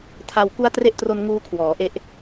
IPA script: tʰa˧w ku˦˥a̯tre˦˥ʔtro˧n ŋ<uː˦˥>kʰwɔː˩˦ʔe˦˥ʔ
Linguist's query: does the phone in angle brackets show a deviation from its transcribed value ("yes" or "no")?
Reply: no